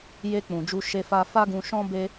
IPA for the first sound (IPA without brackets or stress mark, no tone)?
j